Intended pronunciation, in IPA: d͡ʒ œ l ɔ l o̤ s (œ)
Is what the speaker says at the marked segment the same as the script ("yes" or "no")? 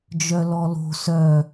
yes